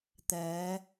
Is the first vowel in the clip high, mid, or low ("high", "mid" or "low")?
mid